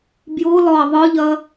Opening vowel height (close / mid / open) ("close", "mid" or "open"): close